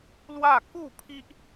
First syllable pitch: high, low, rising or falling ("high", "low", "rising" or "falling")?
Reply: falling